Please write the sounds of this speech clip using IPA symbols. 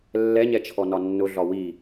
lː ɛ ɲ ɛ t͡ʃʰ ɔ n ɒ nː ʊ ɮ ɒ w i

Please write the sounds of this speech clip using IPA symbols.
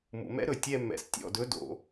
m ṵ˩ m ɛ̰˦˥ ɾ ɵ˧˩ tʲ ɛ˥˧ mː ɛ̰˧˩ s tʲ ɔ̰˧˩ d ɵ˨˦ d o̰˩

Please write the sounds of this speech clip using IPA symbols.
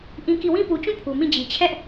ʔ ĩ˦ k i˦˨ w ĩ˦ p u˨ t͡ɕ ũ˦˨ pʰ u˨ m ĩ˦˨ d͡ʑ i˨ t͡ɕʰ ɛ˦ ʔ

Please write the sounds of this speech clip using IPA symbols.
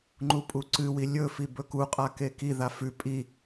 ŋ͡ǃ u pʼ u ǀ ɨ w i lʲ ɵ f i b ɵ k u qʼ a k e k i ð a f ʉ pʼ i

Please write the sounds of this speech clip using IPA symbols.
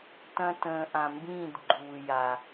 t ɐ̃˧ t ə̃ː˨ ʔ ã˨ m b ĩː˦˨ d ɡ͡ǃ uː˨ j a˨

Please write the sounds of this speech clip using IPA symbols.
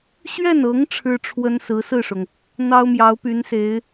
ɕ ɥ ɛ˥˩ n ɤ˧˥ ŋ ʈ͡ʂʰ ɻ̩˥ ʈ͡ʂʰ w ə˥ n s ɹ̩˧˥ s ɹ̩˥˩ ʂ ʊ˩ ŋ | n̪ ɑ˥ ʊ̯ m j ɑ˧˥ ʊ̯ p y˧˥ n s e˧˥ ɪ̯

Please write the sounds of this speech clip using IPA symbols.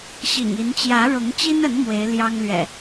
ɕ ḭ˨˩ ŋ i˨˦ n t͡ɕ j ä˨˦ ɻ ʊ˨˦ ŋ t͡ɕ i˦ n ə˨˦ n m w e˨˦ ɪ̯ l j ɑ˦ ŋ l ɥ ɛ̰˨˩

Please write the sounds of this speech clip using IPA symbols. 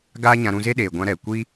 ɡ aː˦ ɲ ã˧ ɾ ũ˧ z e˦ ɗ eː˨ ɡʷ ã˧ ɾ ɛ˨ kʷ iː˦

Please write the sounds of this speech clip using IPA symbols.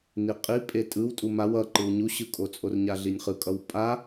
n i qʼ i pʼ e tʼ ɯ w tʼ u m a w ʌ ǃ ɯ w ɲ u ɕ ɯ kʼ o t͡sʼ o r ɲ a ɮ i nʲ χ ɯ kʼ ʌ w pʼ a

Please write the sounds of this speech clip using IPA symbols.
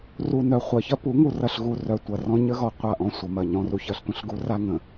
r u˨ n œ˨ χʷ ɐ˨ ç ɐ˦ p u˨˦ ŋ u˨ r ɐ˨ ɬ ɣ u˨ r œ˨ tʷ ɐ˨ r ɔ̃˦ ɲ ə˦ ɣ ɔ˨ qʷ a˦˨ ʔ ɔ̃˦ sʷ ɐ˨ m ɐ˦˨ ɲ ɔ̃˦ r u˦ ç ɐ˦ ɬ tʷ ə̃˦ ɬ ɡ u˦ r a˦ ŋ ə̃˨

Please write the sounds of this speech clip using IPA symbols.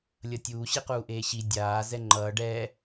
lʲ ʌ tʲ uː ɕ i q uː ʔ eː ɕ i dʲ aː z ɛ ŋ͡ǃ ʌː ɖ ɛ

